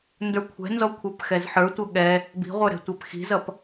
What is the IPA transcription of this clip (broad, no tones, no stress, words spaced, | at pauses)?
ndə˞kʷʰɛ̤nzɔ kʷʰə˞pxɛzħə˞tʷʌ ɠɛ | bi̤ʁʷə˞ ɾɛ̤tʷæpxi̤zʌp